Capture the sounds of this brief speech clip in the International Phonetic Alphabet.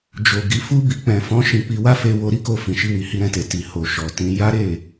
d͡ʒo˨ ɡi˨˦fu˦bi˧ k͡pɛ̃˨fɔ̃˨˦ ʃĩ˧k͡pi˧wa˦ fe˧wo˧ ɾi˦ko˧ fĩ˨ʃi˧wi˨ hi˧ɾɛ̃˧te˨ ti˨ ho˨ ʃɔ˨tĩ˧ ja˦ɾe˦˨

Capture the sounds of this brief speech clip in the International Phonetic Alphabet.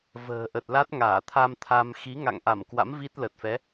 və̤ː˨˩ʔə˨˩t̚la˦˥t̚ ŋaː˧˩t̪ʰa˧mt̪ʰa˧m xi˨˦ŋa̰˧˨ŋʔa˧˩mkwa̰˧˥m vi˦˥t̚ lə˨˩t̚fɛ˨˦

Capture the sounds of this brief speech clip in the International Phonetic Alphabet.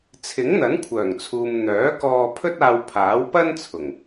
t͡sʰɪ˨˥ŋn̪ɐ˨˥nkʷʰœː˨˩ŋt͡sʰuː˨m n̪œː˨˥kɔː˧ pʰɵ˥t̚aː˧wpʰaː˨˥w pɐ˥nt͡sʰʊ˨˩ŋ

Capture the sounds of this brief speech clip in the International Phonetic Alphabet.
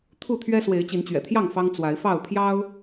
t̪ʰu˥˨t̪ʰɥɛ˦ swe˨˦ɪ̯t͡ɕi˨˦nt͡ɕɥɛ̰˨˩t̪ʰjɑ˥˨ŋ fɑ˦ŋ t͡swa˨˦ɪ̯fɑ˥˨ʊ̯pʰjɑ˦ʊ̯

